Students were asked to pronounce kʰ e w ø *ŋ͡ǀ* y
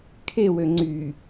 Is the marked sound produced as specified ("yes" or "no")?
yes